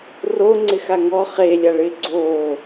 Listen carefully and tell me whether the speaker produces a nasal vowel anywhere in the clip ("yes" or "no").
no